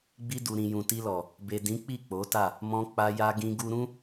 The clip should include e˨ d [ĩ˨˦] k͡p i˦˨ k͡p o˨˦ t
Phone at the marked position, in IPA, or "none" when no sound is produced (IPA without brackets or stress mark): ĩ˨˦